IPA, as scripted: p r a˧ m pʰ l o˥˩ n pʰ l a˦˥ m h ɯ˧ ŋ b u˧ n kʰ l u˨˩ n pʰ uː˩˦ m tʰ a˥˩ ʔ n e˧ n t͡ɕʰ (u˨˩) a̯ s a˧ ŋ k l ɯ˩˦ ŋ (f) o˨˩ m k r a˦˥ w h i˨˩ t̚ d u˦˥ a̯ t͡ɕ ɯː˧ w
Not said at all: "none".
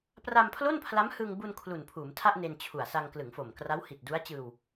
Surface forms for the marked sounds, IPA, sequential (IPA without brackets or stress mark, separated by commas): u˨˩, f